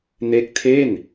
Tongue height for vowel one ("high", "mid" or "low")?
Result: mid